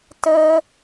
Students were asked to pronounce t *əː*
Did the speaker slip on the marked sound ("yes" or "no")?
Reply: no